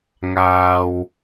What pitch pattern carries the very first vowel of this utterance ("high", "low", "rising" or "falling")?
low